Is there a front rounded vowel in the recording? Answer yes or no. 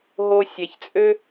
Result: yes